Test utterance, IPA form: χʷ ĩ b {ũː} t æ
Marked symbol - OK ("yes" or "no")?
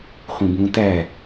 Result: yes